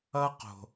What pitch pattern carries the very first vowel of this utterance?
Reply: high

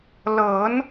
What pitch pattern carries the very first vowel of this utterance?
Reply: rising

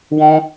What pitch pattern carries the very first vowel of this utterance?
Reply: high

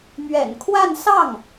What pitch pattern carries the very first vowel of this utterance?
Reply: low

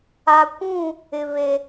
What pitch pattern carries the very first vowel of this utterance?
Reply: low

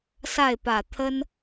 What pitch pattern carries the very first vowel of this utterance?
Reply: falling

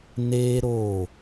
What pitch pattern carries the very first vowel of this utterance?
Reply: high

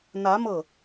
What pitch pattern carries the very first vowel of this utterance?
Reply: rising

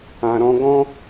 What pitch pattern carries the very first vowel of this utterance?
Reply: low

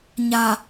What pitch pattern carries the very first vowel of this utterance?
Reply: low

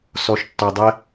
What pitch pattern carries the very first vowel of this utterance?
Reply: low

